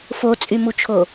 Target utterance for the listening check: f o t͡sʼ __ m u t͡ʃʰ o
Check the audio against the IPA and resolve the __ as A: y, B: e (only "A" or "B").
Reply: A